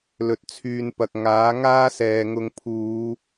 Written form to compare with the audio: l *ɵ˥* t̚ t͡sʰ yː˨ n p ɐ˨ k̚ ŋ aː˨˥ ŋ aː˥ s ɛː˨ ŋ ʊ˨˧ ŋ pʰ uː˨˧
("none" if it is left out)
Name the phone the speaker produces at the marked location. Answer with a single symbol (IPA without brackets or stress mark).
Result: ɵ˨